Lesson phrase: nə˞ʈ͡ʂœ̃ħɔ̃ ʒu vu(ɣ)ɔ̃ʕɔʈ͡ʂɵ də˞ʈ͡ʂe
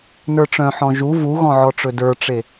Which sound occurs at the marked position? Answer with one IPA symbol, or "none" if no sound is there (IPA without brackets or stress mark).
ɣ